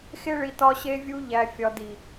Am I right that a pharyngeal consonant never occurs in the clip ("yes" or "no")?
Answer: yes